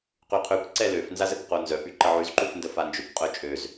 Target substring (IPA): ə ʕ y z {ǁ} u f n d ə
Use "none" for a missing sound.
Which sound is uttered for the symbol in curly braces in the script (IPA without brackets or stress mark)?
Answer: ǃ